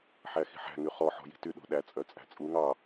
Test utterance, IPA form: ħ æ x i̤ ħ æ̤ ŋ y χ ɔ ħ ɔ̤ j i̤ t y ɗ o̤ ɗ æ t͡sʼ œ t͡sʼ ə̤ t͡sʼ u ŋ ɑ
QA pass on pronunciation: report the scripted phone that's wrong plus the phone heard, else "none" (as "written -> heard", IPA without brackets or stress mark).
ə̤ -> æ̤